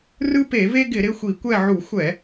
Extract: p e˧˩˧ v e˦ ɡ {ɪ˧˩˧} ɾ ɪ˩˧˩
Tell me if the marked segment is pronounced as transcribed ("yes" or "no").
yes